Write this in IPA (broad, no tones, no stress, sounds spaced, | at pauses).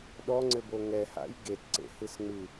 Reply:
ɗ ɔ ŋ͡ǀ ɘ b o ŋ ɛ h a̰ j ɡ e t ǀ ḛ h ɨ s ŋ͡m ɨ